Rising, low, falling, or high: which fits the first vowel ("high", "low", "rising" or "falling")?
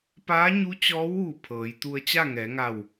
rising